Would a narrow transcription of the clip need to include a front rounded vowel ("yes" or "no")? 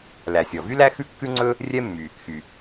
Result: yes